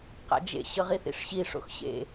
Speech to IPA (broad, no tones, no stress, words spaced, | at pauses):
qa̰d͡ʒḛ ɕɤʁiθḭʂɕi ʂo̰xɕḛ